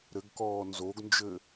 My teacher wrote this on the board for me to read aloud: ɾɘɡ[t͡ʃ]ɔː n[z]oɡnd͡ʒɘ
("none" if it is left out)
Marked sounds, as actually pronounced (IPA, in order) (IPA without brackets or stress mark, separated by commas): k, z